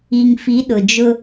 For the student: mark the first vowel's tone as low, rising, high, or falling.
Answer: low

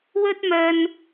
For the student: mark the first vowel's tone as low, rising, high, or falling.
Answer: high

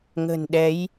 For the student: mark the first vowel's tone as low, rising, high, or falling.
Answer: low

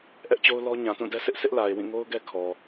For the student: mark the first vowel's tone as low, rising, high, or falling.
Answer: high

